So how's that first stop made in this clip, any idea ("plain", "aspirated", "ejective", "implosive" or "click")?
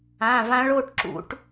plain